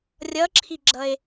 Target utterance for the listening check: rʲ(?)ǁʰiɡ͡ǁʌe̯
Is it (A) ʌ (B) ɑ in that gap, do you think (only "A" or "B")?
A